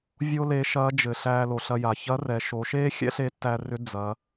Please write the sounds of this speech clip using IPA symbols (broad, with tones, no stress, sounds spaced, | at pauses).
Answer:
vʲ o˥ l e˧˥ ʃ ɐː˧˥ d͡ʒ ɘ˩ ɬ æː˧ l o˩ ɬ ɐ˧ j a˩ ç ɐ˧˥ r ɛ˩˧ ʃ o˩˧ ʃ eː˥ xʲ ɛ̰˥ ɬ e˧˥ tː æ˧ r ʏ˧˥ d͡z ɐ˩˧